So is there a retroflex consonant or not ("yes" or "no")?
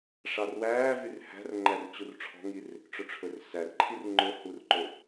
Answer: yes